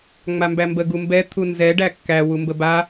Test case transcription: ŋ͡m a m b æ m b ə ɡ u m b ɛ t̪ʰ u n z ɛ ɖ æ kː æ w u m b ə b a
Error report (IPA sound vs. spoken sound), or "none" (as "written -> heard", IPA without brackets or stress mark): none